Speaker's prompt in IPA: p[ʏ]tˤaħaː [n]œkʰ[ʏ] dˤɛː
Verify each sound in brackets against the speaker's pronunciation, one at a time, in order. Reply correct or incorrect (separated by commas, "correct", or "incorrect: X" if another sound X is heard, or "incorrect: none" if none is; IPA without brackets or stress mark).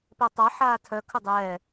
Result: incorrect: ɛ, incorrect: tʰ, correct